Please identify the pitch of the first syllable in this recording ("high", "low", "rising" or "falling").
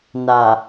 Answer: low